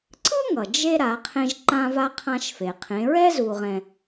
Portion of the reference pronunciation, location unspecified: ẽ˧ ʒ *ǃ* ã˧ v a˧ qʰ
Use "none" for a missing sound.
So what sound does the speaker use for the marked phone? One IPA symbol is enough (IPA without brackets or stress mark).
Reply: ǃ